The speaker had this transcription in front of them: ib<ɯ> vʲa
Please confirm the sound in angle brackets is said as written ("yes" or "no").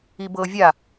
no